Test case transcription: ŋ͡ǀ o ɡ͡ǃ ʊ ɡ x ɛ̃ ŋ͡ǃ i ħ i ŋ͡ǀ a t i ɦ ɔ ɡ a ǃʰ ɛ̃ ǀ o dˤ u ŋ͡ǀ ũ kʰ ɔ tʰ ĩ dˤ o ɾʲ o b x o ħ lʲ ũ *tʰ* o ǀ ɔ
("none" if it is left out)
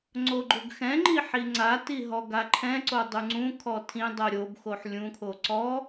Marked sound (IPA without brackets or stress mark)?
kʰ